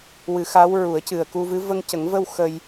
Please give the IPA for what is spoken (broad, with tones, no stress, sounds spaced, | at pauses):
w ɨ˨˩˦ x a˧˥ w ɹ u˨˩˦ ə̯ c ɨ˨˩ ə̯ k u˧ v ɨ˧˥ v ə˧ ŋ c ə˨˩˦ ŋ v ə˧ w x ə˧ j